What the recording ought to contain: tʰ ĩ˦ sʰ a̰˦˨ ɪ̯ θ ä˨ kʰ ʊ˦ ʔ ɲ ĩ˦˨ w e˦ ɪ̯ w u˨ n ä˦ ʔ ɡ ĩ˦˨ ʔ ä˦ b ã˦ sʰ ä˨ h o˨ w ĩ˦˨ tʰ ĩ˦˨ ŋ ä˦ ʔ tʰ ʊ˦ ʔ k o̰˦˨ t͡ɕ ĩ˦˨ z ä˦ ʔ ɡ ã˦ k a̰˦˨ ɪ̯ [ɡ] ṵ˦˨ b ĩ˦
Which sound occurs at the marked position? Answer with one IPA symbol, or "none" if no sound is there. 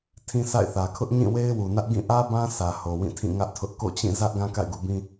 ɡ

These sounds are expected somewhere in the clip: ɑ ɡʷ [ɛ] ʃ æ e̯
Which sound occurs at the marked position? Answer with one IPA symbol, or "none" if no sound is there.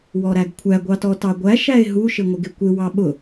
æ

